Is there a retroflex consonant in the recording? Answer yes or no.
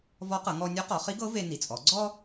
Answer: no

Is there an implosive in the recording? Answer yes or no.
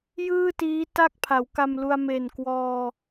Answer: no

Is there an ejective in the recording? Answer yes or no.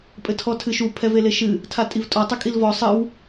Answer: yes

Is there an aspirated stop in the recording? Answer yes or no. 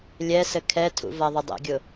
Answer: yes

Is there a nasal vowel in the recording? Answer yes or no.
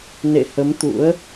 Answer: no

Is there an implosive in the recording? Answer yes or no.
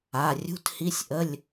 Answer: no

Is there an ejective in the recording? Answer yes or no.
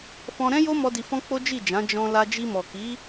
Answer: no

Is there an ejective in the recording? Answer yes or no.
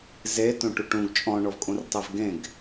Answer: yes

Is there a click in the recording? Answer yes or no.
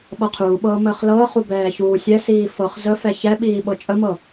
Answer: no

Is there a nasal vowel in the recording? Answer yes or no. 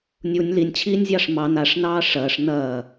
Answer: no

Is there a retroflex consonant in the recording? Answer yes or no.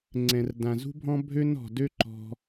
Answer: no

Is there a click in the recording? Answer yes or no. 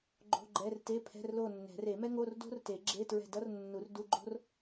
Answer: yes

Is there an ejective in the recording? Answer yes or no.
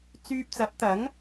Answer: no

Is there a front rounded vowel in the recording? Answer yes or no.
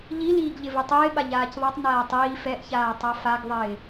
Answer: no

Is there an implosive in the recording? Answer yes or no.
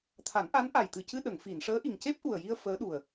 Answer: yes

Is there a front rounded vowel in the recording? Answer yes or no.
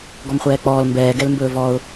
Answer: no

